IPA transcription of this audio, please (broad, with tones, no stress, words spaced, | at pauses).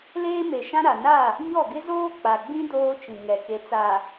leː˦me˨ʃã˦ ɾa˨ na˦˨ | ɲɔ˦˨ɡɪ˦zoː˦ k͡pa˨ɡ͡bĩ˦ doː˦t͡ʃĩ˨ ŋɛ˨ke˨t͡sa˨